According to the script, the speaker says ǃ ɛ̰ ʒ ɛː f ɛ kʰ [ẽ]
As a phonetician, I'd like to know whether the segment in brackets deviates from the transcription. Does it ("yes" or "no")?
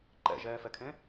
no